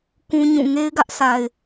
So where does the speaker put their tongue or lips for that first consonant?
velum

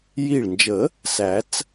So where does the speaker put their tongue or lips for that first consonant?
palate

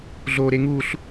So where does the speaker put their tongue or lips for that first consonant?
tongue tip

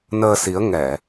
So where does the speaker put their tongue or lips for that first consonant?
tongue tip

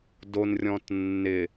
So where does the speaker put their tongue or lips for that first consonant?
tongue tip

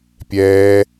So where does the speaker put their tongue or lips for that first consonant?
lips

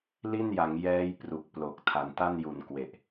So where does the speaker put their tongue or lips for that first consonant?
tongue tip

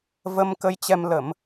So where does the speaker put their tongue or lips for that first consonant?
lips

